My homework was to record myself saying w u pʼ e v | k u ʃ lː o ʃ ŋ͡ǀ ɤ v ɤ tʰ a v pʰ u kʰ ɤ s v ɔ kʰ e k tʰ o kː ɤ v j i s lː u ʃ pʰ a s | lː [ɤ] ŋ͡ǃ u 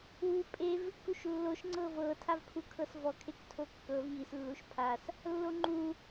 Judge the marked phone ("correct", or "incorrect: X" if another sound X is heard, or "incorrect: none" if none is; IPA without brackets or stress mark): incorrect: o